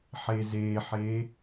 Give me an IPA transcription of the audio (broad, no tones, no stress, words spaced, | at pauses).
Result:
ħezeħe